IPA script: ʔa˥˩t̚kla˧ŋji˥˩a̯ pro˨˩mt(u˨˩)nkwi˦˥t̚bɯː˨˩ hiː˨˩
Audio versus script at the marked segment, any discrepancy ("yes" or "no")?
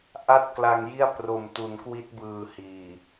yes